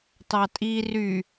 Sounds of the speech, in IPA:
tɑtʼi ry

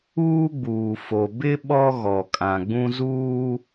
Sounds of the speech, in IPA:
uː˦ɡ͡buː˨fo˨ bɪ˦ ɓɔ˦ɣɔ˨kʼã˨ ɡ͡bũ˦zuː˦

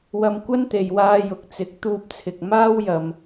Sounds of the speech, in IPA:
wɐ˧mkʷɐ˥nt̪e˨jwaː˧ jʊ˨k̚t͡sɪ˨˥k̚ t̪uː˧p̚t͡sʰɪ˨k̚ maː˥wjɐ˨m

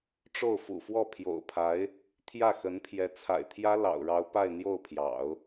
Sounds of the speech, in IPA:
ʈ͡ʂo˥˩ʊ̯fṵ˨˩fwɔ˥˩ pʰjo̰˨˩ʊ̯pʰa˧˥ɪ̯ | t̪ʰjä˥˩xə˧˥n pʰjɛ˧˥t͡sʰa̰˨˩ɪ̯t̪ʰjä˥ lɑ̰˨˩ʊ̯ɻɑ˧˥ʊ̯ pa˥˧ɪ̯n̪jo˥˩ʊ̯pʰjɑ̰˨˩˦ʊ̯

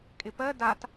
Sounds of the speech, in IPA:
kʼɪpɜ dat

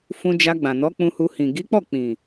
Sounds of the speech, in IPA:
fũ˧d͡ʒa˧ɡ͡bã˨nɔ˨˦ k͡pũ˧hu˧hĩ˨ ɡi˨˦k͡pɔ˦˨ k͡pĩ˨

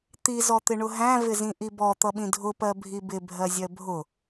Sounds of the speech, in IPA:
t̪i zɔt̪ɪɳʊɦæ̃ vɪzĩʔibɔ t̪ʌɓĩdʱʊ pɜbʱibɪ bʱɜzʲɜbʱʊ

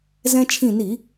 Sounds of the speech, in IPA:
zɛ̃˧t͡ʃʰĩ˧˩ni˧˩˧

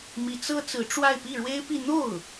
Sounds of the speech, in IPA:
mi˧˥t͡sɤ˥ t͡sɹ̩˧˥ʈ͡ʂwa˥˧ɪ̯ pi˥˩ɻwe˥ɪ̯pi˥˧ n̪o˥˩ʊ̯

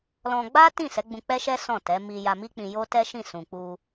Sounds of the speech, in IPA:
lɔ̃˧ ɡ͡ba˦ tĩ˦˨ sɛ˨˦ɡ͡bũ˧k͡pɛ˦ʃɛ˦ sɔ̃˦˨tɛ˨˦ mi˧ ja˧mi˦k͡pĩ˧ jo˦ tɛ˦ʃĩ˦˨sũ˨k͡pu˧

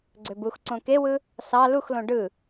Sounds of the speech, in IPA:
ɡ͡ǀøbuxǀõ kewɯ | sɑ luxlõ ɖɯ

